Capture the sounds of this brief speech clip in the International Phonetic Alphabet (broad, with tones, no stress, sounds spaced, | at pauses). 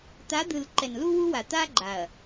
t̪ a˨˦ d̪ ɯ˨ l ǃ ɛ˨ n l u˦ w u˦ w a˨ t̪ a˦ ɡ͡ǃ a˨ ɐ̯